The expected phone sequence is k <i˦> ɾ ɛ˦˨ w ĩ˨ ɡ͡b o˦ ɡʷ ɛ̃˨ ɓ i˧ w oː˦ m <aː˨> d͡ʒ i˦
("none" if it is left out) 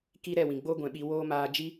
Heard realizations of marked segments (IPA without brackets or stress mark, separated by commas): i˦, aː˧